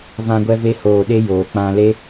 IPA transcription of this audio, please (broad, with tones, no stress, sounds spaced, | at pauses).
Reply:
v ã˧ ɡʷ ɛ˧ v e˧ h oː˨ ɗ e˧ j oː˨ k͡p ã˧ l e˦